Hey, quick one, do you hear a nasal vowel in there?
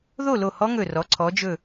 no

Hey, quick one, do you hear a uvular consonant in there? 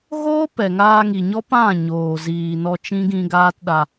no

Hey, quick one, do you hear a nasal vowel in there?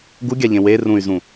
yes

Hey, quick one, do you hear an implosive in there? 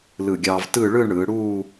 no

